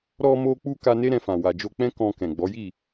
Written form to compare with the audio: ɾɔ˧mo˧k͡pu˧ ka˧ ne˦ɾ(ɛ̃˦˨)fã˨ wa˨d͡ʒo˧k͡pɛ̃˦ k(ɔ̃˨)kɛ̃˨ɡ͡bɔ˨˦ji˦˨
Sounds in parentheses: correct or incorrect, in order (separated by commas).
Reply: incorrect, incorrect